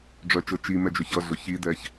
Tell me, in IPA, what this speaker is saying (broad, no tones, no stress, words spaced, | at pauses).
ɖ͡ʐœt͡ʃɤ t͡ʃimɛd͡ʒœç ʌɮʊ çidɛç